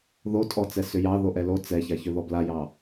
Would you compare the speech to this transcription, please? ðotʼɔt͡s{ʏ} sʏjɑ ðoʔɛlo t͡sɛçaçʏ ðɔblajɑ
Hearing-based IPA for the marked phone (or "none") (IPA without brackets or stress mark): ɛ